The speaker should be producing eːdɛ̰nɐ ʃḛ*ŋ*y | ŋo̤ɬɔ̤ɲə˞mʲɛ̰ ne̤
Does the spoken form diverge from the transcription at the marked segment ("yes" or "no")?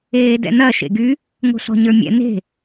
yes